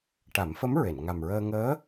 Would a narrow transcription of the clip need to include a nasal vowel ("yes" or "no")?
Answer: no